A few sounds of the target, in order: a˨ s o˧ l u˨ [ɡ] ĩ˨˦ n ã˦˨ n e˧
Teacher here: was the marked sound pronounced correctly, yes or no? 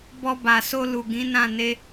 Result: yes